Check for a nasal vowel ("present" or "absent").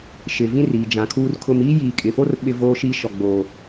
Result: present